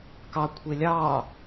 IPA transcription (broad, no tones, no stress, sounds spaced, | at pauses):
k ɑ kʷʰ e lʲ ɑː